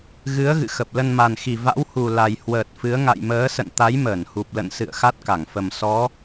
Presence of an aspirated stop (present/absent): absent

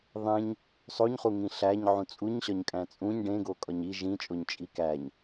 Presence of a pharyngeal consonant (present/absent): present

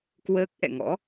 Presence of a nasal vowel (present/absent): absent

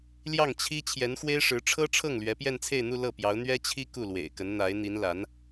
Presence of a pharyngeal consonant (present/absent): absent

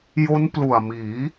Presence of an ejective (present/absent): absent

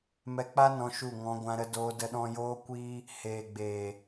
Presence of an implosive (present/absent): present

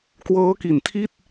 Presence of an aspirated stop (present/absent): present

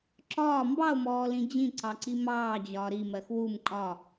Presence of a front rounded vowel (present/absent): absent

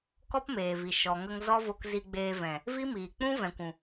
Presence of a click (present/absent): absent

